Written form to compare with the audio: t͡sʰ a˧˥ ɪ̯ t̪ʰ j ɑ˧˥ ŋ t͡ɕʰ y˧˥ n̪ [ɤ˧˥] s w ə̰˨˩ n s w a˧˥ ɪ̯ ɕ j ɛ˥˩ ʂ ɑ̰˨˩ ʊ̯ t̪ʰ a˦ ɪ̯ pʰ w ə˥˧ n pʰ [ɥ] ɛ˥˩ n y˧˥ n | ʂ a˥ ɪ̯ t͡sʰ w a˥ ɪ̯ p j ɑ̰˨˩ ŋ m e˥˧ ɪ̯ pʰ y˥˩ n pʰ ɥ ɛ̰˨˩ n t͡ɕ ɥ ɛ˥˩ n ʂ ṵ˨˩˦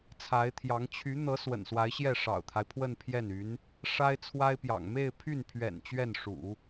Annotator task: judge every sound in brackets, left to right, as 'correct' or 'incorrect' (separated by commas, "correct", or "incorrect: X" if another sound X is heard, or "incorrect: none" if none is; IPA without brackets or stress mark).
correct, incorrect: j